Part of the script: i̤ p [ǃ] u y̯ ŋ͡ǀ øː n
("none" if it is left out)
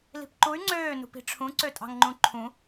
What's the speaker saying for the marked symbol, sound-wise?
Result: ǃ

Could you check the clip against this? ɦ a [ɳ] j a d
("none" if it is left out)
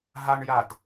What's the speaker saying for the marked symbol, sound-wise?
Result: ɳ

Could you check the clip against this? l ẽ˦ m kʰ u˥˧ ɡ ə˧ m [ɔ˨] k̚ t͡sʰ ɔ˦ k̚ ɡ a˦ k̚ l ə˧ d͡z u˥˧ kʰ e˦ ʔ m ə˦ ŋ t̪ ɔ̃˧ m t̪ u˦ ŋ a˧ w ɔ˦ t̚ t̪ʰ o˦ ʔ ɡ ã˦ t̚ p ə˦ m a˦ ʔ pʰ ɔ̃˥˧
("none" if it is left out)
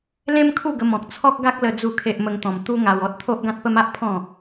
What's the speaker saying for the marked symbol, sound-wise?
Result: ɔ̃˨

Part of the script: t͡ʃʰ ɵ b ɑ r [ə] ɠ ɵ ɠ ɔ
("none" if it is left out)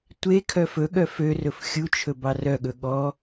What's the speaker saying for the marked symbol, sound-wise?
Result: œ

